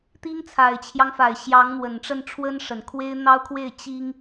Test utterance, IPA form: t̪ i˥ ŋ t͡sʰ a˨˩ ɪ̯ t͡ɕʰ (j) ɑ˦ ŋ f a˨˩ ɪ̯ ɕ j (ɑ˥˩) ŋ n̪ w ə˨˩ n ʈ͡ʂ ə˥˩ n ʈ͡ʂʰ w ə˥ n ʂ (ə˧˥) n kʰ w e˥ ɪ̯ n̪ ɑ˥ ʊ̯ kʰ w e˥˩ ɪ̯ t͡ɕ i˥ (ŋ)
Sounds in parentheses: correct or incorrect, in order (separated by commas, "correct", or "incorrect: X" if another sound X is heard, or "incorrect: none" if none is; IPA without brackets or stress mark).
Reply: correct, incorrect: ɑ˧˥, incorrect: ə˨˩, correct